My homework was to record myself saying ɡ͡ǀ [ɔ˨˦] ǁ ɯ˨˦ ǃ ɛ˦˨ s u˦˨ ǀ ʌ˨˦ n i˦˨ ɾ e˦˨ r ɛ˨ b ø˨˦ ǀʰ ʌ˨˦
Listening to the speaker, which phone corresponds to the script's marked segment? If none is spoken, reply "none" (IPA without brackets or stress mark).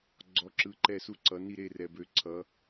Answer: ɔ˨˦